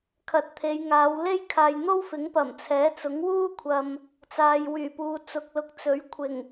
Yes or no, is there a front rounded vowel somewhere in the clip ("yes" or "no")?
yes